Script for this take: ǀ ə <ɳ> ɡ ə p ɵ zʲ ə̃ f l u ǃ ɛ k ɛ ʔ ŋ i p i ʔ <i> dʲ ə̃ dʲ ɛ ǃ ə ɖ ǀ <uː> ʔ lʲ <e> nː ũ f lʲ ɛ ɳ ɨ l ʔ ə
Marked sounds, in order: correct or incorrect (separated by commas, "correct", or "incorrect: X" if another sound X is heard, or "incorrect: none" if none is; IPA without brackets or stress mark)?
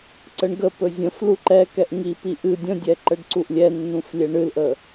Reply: correct, incorrect: ɨ, incorrect: u, incorrect: ɛ